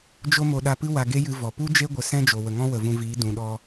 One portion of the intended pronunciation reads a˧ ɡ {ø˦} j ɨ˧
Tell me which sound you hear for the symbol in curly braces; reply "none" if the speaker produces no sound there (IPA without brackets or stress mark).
e˦